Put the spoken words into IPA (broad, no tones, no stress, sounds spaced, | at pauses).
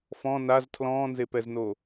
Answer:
f ɔ̃ n a z tʰ l ɔ̃ː n z e p ɛ z n o